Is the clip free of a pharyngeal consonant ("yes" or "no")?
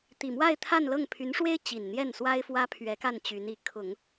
yes